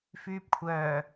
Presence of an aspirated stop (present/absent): present